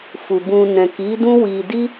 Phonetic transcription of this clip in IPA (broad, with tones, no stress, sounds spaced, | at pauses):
f u˨ b ũ˧ n ɛ̃˨ k i˨˦ d ũ˦ w i˧ d i˦